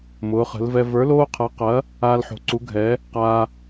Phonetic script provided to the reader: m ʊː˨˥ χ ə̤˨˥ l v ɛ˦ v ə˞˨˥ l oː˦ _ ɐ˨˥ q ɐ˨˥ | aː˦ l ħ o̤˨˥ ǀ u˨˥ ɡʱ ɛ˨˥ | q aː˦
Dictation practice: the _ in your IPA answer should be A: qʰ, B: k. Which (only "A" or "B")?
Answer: A